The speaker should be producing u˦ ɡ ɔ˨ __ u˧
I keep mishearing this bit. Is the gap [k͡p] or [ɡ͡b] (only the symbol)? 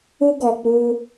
k͡p